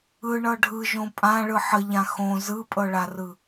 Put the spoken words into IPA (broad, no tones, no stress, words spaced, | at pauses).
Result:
ɯɳɤ ɖʱɯʒõ pʼãɭɯ ħəʎã xõ zɯpʼɤɭarɯ